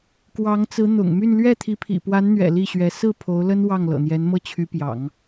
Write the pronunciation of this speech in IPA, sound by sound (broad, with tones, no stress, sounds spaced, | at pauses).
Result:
k w ɑ˧˥ ŋ t͡s ɹ̩˧˥ n̪ ʊ̰˨˩ ŋ m y˥˧ n l ɥ ɛ˥˩ t̪ʰ i˧˥ pʰ ḭ˨˩ p w a˧˥ n n̪ ɥ ɛ̰˨˩ l i˥˩ ɕ ɥ ɛ˧˥ s ɹ̩˥˩ pʰ o˧˥ ʊ̯ l ə˥ n w ɑ˥˩ ŋ l ɤ̰˨˩ n̪ j ɛ˧˥ n m ɤ˥˩ t͡ɕʰ y˧˥ p j ɑ̰˨˩˦ ŋ